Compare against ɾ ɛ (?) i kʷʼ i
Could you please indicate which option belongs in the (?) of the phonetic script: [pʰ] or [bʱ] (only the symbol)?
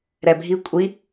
bʱ